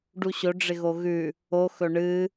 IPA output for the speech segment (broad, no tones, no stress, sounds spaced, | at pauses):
ɖ u ɕ ɵ ɖ͡ʐ ɪ ɣ o ɣ ʉ | o x ɵ ɳ ɨ